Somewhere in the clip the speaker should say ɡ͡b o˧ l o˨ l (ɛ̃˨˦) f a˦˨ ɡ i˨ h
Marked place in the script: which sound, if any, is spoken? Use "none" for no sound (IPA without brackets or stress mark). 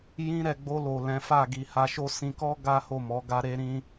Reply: ɛ̃˨˦